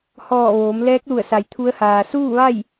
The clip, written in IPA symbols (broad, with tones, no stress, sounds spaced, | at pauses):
h ɔː˧˩ ʋ oː˩˧ m l ɛː˧˥ k̚ l u˧˩ ə̯ s a˩ j t̪ʰ u˧˥ ə̯ h aː˩ s uː˥˨ ʋ a˥˨ j